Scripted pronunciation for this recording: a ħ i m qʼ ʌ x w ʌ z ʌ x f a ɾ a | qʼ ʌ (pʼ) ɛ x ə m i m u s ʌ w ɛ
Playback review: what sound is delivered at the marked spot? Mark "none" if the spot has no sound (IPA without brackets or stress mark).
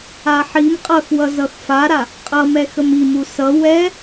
m